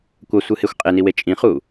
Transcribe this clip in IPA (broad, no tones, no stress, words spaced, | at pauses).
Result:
kʷʌsʷɯhexʷ qʼeniwe t͡ʃʼĩχu